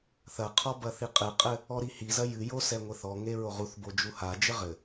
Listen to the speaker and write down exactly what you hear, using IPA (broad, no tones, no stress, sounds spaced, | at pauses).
θ ɐ qʰ ɔ b ɐ θ i qʼ ɨ qʼ ɘ | ɔ ɾ i h i z ɐ j ɨ j o s ɛ ŋʷ e θ ɔ ŋ e ɹ o ʁ u θ b o d͡ʒ u h a d͡ʒ ɘ ʁ ɘ